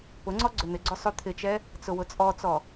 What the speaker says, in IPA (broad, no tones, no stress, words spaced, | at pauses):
pʊŋ͡ǀɔ ɡ͡ǀʏn̪ɪɡ͡ǀʏ sˤyt̪ʰɪt͡ʃɛ | t͡sʊwʊt͡sʼɔt͡sɔ